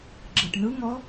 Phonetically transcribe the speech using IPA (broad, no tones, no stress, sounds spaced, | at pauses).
ɡ͡ǁ ɯ ʈ n ɯ ŋ ɔ